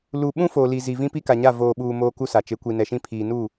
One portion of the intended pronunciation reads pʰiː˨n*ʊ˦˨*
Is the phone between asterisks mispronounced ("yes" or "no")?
yes